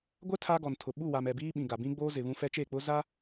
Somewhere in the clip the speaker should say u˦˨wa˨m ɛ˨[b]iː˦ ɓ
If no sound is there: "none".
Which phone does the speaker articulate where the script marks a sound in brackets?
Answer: b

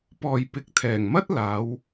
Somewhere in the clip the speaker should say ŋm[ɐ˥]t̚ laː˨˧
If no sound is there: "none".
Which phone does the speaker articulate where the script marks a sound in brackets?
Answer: ɐ˥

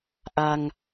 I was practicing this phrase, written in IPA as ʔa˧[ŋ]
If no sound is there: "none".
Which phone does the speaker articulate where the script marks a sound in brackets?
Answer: ŋ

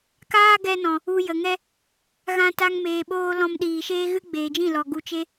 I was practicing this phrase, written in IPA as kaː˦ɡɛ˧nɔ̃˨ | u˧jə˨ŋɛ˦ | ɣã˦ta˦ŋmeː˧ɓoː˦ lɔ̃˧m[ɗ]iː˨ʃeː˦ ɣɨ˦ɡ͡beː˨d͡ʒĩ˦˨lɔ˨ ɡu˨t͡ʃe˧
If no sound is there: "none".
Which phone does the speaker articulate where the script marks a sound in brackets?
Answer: ɗ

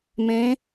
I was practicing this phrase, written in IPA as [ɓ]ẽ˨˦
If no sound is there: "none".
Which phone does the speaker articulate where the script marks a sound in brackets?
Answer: m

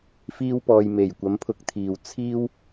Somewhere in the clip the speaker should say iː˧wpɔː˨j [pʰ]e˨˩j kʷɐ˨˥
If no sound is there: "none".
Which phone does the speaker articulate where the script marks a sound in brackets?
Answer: m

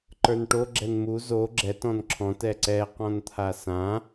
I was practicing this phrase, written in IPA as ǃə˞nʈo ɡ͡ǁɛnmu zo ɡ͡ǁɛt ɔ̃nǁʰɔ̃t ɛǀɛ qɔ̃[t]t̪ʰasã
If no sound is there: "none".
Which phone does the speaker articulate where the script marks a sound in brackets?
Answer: n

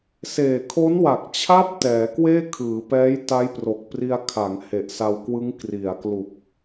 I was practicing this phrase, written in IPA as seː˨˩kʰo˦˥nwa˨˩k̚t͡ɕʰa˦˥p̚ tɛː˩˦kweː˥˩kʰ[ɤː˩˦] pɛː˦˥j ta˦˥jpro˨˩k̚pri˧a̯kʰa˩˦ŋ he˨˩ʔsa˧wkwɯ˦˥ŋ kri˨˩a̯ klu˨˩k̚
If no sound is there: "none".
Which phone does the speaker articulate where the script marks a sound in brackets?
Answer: ɯː˩˦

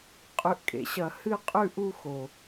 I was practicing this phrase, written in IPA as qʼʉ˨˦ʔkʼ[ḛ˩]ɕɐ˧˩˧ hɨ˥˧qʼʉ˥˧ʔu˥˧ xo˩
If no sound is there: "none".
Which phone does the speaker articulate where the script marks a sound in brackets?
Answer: ḛ˩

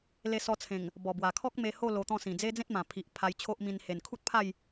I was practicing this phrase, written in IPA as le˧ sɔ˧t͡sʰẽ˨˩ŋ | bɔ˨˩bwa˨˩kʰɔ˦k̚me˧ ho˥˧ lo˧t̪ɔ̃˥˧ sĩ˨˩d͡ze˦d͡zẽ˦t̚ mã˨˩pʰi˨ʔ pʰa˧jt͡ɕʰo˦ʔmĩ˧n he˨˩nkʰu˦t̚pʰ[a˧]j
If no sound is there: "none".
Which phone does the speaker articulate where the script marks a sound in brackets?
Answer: a˥˧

